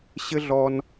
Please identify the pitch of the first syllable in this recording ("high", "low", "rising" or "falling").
high